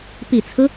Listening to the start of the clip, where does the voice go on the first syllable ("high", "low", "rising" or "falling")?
low